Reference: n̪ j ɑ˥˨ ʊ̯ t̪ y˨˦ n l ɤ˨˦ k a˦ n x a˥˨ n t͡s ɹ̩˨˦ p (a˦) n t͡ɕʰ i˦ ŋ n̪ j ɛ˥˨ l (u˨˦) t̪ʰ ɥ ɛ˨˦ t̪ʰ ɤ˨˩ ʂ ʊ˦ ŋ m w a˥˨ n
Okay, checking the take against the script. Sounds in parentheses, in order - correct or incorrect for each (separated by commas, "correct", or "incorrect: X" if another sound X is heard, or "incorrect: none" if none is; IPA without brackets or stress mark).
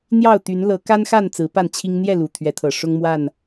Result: incorrect: a˥˨, incorrect: u˨˩